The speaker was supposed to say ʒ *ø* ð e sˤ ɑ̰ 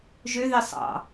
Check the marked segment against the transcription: correct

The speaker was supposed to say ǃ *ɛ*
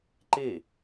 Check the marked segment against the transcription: incorrect: e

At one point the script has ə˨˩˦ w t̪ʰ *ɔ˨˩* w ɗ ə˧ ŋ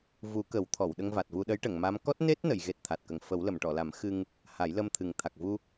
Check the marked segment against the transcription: incorrect: ɔ˨˩˨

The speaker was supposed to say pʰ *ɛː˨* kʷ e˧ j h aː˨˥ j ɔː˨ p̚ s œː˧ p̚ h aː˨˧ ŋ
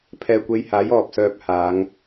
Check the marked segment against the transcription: correct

